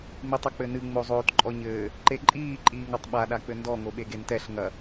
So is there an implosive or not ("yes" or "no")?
yes